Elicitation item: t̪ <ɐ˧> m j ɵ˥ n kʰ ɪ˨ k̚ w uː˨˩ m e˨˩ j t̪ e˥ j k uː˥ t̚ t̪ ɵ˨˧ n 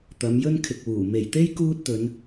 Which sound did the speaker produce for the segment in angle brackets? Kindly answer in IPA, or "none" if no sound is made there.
ɐ˨˧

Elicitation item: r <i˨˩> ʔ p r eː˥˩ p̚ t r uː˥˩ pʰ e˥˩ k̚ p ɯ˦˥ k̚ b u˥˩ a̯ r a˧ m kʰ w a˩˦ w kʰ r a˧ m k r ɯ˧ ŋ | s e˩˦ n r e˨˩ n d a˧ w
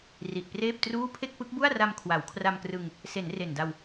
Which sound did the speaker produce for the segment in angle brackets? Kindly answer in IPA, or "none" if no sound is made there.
i˨˩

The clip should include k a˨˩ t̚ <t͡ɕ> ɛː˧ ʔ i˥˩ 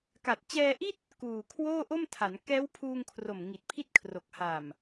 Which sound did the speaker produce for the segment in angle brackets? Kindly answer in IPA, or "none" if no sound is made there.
t͡ɕ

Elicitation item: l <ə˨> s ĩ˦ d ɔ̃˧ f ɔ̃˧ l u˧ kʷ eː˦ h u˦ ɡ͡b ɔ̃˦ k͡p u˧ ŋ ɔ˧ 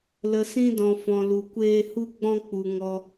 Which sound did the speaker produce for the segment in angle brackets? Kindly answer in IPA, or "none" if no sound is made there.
ə˧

